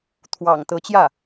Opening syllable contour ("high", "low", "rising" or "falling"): low